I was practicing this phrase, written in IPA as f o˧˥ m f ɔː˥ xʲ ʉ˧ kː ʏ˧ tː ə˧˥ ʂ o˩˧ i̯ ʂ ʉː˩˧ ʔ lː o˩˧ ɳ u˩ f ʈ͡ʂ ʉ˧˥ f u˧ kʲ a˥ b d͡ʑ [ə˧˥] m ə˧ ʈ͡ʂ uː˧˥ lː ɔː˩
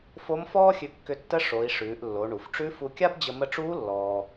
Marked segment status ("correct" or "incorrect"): incorrect